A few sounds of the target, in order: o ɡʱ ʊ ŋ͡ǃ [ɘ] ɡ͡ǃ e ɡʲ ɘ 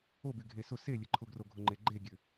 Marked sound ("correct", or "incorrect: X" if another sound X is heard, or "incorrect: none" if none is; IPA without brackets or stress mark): incorrect: e